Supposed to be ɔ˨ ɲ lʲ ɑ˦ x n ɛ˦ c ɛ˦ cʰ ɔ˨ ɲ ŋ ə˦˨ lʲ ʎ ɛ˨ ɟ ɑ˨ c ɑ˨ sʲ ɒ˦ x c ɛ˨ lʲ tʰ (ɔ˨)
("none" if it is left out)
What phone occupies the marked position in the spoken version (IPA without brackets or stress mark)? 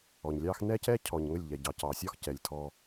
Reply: ɔ˦